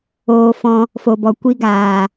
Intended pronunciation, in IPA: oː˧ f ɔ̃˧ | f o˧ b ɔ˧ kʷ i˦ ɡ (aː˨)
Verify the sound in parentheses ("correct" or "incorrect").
correct